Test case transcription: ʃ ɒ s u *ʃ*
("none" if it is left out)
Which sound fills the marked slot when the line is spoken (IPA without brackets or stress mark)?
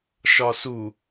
none